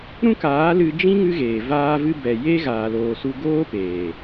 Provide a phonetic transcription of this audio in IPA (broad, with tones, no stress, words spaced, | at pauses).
ɾũ˦kaː˨˦lɨ˧ d͡ʒĩ˦ ŋɨ˦ɣeː˨vaː˦vɨ˦ bɛ˨ je˦ɣaː˨loː˨su˧ ɡoː˦peː˨